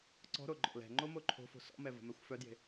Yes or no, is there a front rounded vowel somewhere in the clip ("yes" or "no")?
yes